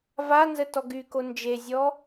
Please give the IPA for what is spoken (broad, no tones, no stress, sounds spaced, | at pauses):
v a n z ə t ɔ ɡ y k o n d͡ʒ e zʲ ɔ